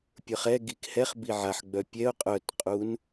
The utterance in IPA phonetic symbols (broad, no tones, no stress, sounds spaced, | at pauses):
pʲ ə˞ χ ɛ ɡ i k h ɛ χ b i ʕ a ħ ɡ͡b œ pʲ ɛ ʊ̯ qʼ œ t qʼ u n